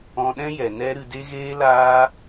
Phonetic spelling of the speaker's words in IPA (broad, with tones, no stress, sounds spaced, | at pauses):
ɔ̃˧ ɗ ɛ̃˦ j ɛ˨ n ɛ˦ ɾ ɨ˧ d e˦ ɣ eː˦ l aː˦